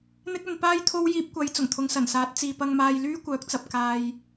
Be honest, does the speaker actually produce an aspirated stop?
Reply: yes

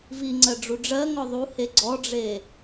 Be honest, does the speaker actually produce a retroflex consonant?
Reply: yes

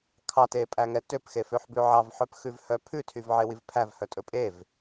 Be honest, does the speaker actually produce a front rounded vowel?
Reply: yes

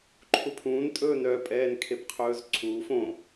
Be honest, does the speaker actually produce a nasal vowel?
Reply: yes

